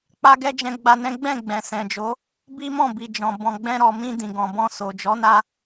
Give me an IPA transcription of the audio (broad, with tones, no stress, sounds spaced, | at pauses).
k͡p a˦ ɡ ɛ˦ d͡ʒ ɛ̃˧ ɡ͡b a˧ n ɛ̃˦ ɡ͡b ɛ̃˦˨ ɡ͡b ɛ̃˨ s ɛ̃˨ d͡ʒ o˨˦ | b i˦ m ɔ̃˦˨ b i˨ d͡ʒ ɔ̃˨ b ɔ̃˨ ɡ͡b ɛ̃˧ ɾ ɔ˨ m ĩ˧ d ĩ˨ ɡ ɔ̃˨ b ɔ̃˧ s o˨ d͡ʒ ɔ˨˦ n a˧